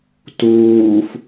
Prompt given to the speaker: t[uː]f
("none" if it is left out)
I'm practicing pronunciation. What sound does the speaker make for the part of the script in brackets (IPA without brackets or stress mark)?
uː